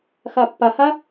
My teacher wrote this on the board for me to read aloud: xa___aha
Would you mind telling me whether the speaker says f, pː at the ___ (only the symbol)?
pː